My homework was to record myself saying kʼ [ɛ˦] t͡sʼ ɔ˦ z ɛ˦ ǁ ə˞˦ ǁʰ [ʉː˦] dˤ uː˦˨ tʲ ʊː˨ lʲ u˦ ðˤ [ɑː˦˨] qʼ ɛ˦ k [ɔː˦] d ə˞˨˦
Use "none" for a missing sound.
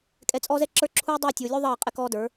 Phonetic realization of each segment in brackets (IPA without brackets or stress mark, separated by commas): ɛ˨, uː˦, ɑː˦˨, ɔː˦